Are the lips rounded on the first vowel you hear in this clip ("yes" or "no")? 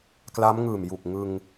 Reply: no